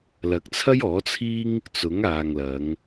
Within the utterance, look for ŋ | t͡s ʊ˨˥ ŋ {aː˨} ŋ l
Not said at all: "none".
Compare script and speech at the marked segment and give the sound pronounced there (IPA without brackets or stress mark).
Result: aː˨